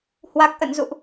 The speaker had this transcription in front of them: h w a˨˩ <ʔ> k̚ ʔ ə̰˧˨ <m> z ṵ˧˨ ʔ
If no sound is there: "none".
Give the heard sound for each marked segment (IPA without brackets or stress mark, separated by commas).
none, n